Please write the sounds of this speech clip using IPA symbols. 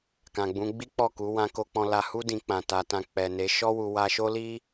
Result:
k ã˨ ɡ͡b ũ˨˦ ɡ͡b i˦ k͡p ɔ˦˨ k u˨˦ w ã˧ k o˧ k͡p ɔ̃˧ l a˧ h u˦ d ĩ˧ k͡p ã˨ t a˨ t ã˧ k͡p ɛ˨ n e˨˦ ʃ ɔ˦ w u˧ w a˧ ʃ o˦ l i˦

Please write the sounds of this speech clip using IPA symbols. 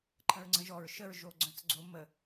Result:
ǃʰ ə̃ ɹ ŋ͡ǀ ə̃ ʒ ɔ ɹ ʃ ə ɹ ʒ o ɡ͡ǀ œ̃ t͡s ɡ͡ǀ o m ə

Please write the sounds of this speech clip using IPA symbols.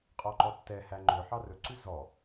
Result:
qʼ ɔ ǃ ɔ tː ɛ h æ ŋ͡ǃ ɵ ħ ɑ r ɵ ǀ ʉ z ɔ

